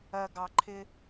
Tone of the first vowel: low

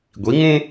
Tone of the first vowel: rising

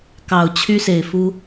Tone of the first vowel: low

